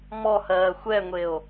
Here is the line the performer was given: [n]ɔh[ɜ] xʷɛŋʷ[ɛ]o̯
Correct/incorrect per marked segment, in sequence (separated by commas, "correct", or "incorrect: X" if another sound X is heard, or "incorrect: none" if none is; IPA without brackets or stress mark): incorrect: m, incorrect: ɜː, incorrect: e